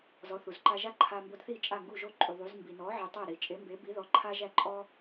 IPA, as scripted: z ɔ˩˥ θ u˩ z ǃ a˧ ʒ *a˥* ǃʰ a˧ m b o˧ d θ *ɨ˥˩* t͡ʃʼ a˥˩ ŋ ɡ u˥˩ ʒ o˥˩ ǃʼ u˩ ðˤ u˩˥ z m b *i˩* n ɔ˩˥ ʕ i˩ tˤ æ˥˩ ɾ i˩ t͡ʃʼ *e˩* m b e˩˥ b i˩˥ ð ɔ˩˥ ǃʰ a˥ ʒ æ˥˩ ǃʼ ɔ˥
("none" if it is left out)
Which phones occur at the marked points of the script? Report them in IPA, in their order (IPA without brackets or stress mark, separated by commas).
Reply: a˥, i˥˩, i˩, e˩˥